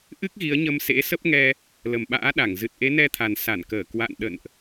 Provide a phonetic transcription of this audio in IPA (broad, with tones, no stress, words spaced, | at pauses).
ʔɨ˦˥k̚ɣi˨˦ə̯ɲə˧m sḛ˧˥sə˦˥p̚ŋɛ˧ | lə˨˩mɓa̰ː˧˥ɗa˧˩ŋ zɨ˨˩t̚ʔe˨˦nɛ˧t̪ʰa˨˩n sa˧˩nkəː˧˩ kwa̰˧˨nɗə̰˧˨nʔ